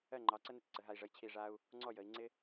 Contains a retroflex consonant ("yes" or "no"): yes